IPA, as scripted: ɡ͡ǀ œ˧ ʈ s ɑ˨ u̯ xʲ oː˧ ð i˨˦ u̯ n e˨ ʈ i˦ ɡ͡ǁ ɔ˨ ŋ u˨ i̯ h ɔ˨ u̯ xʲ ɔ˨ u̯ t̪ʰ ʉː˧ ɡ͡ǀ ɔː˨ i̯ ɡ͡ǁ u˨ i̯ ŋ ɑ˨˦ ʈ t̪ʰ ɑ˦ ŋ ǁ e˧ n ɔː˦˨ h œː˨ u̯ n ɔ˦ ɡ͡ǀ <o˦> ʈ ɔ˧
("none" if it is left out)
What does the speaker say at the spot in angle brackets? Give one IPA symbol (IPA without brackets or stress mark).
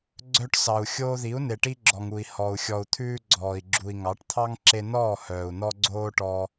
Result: oː˦